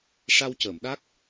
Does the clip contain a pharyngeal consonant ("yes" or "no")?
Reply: no